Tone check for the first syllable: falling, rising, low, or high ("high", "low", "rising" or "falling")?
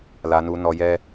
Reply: high